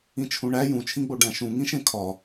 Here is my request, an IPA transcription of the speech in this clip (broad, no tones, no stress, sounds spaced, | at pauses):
ĩ t͡ʃʰ ũ ɳ æ j ũ t͡ʃʰ ĩ ɡ͡b o ɖ æ̃ ʃ ũ ŋ ĩ ʃ ẽ kʰ ɒ